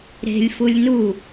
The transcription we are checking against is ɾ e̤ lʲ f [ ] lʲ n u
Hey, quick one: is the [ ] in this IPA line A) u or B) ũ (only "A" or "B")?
A